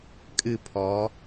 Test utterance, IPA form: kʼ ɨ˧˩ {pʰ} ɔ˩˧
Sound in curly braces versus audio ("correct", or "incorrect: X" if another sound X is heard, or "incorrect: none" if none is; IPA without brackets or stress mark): correct